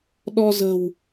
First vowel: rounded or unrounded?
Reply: rounded